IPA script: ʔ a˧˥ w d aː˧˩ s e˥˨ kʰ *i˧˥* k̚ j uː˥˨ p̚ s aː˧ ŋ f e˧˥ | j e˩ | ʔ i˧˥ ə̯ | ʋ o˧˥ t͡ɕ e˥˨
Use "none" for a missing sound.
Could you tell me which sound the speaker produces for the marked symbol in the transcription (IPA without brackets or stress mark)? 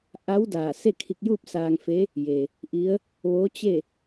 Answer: i˧